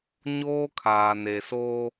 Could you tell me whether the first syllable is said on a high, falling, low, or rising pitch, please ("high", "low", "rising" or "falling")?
high